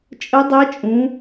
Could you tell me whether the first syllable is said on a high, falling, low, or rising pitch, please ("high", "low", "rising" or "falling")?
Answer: rising